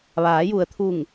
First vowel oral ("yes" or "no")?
yes